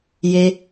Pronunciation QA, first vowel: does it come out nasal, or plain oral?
oral